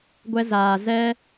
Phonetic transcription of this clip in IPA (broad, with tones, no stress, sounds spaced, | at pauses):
ɡʷ ɛ˧ z aː˨ z ɛ˧